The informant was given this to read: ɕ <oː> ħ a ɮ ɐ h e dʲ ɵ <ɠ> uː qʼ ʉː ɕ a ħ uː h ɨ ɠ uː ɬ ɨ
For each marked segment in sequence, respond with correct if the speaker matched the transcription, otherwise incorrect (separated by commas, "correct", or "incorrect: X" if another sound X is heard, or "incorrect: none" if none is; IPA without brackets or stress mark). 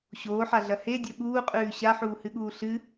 correct, correct